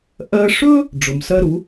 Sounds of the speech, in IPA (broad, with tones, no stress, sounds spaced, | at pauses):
ʔ ɜ˧ ʂ ɵ˥ | ɖ͡ʐ ʊ˩ m s ɜ˥ ɾ u˩˥